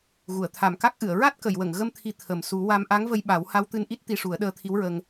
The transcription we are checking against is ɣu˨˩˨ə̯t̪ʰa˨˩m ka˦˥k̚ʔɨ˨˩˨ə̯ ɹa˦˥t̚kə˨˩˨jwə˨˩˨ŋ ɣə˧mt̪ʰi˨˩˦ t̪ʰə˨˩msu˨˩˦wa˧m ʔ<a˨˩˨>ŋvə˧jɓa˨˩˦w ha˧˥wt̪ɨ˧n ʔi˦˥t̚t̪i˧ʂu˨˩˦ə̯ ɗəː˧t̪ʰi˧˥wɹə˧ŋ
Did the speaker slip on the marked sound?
yes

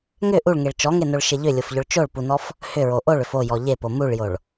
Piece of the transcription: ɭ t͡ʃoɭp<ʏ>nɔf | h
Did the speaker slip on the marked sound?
yes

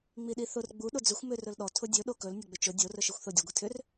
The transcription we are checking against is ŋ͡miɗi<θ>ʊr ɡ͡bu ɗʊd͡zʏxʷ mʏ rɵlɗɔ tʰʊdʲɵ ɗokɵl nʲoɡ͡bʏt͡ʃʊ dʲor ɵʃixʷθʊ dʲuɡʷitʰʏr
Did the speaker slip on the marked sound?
no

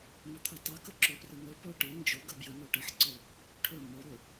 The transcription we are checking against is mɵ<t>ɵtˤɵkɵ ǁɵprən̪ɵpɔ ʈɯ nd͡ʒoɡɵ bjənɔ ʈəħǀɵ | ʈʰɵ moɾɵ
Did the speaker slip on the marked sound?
yes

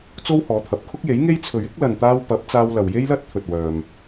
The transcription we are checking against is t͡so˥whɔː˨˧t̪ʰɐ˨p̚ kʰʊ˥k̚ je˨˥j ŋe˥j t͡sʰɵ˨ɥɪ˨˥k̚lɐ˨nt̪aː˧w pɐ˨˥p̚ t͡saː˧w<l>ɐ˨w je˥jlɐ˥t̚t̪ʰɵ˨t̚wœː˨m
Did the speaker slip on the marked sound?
no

